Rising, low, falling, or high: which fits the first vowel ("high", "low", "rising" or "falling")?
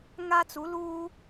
high